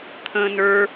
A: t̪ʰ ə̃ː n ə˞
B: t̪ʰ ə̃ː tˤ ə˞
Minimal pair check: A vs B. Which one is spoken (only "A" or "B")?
A